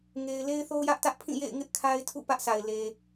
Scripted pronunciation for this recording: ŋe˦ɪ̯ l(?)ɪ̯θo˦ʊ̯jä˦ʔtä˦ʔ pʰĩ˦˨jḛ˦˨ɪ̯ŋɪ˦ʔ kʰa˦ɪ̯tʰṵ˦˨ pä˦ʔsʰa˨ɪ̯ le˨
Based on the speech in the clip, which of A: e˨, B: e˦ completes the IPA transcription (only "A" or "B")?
B